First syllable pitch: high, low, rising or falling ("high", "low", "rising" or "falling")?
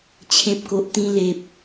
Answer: low